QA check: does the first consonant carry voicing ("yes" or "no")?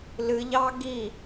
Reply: yes